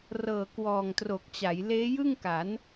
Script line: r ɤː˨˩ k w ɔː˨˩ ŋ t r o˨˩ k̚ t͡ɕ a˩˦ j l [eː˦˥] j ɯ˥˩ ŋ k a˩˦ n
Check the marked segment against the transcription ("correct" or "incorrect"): correct